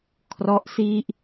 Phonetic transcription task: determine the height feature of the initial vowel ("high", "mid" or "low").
mid